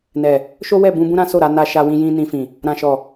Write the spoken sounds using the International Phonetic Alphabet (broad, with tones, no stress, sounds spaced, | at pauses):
n ɛ˨ | ʃ o˦ w ɛ˦˨ b ũ˧ b ũ˦ ɾ ã˦ s o˦˨ ɾ a˧ n a˧ ʃ a˧ w ĩ˧ j ĩ˧ n ĩ˧ f ĩ˨ | ɾ ã˨ ʃ ɔ˨